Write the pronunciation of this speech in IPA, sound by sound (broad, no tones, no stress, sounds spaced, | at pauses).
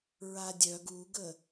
ɹ a dʲ œ ɡ u ɡ ə